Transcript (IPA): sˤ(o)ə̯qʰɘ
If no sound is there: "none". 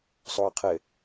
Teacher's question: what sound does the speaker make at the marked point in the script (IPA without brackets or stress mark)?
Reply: o